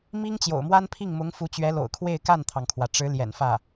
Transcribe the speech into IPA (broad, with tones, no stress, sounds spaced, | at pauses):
m i˥ ŋ t͡ɕ j o̰˨˩ ʊ̯ m w a˥ n pʰ i˥˩ ŋ m ʊ˧˥ ŋ f u˧˥ t͡ɕ ɥ ɛ˧˥ l o̰˨˩ ʊ̯ kʰ w e˥˧ ɪ̯ k a˥˩ n t̪ʰ ɑ˩ ŋ kʰ w ä˩ ʈ͡ʂ ɻ̩˧˥ l j ɛ̰˨˩ n f ä˥˩